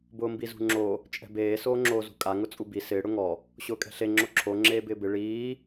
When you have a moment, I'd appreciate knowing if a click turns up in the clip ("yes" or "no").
yes